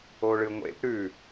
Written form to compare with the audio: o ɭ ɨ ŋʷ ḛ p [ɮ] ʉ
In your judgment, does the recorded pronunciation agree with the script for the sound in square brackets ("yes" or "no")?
no